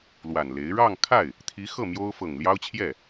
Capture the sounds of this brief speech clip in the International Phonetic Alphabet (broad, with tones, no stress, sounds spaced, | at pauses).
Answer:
l w a˨˩ n l e˧˥ ɪ̯ ɻ ɑ˥˧ ŋ kʰ a˥˩ ɪ̯ | t̪ʰ i˧˥ x ɤ˥˩ m j o˥ ʊ̯ f ɤ˨˩ ŋ l j ɑ˥ ʊ̯ t͡ɕʰ j ɛ˥˩